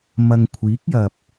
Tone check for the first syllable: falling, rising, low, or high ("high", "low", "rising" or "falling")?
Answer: low